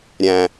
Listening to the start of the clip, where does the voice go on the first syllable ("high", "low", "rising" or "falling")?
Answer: low